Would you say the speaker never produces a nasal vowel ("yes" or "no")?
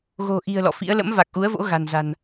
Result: yes